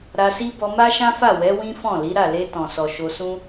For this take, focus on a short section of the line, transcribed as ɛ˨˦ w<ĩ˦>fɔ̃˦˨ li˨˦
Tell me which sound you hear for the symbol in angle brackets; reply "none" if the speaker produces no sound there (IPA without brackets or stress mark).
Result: ĩ˦